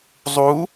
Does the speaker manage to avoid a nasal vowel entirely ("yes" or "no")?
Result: yes